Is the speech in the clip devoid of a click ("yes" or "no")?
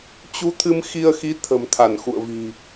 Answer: yes